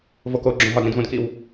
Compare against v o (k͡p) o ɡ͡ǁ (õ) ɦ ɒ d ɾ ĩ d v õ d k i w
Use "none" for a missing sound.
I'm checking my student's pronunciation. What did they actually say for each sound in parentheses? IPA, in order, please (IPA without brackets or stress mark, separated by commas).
k, õ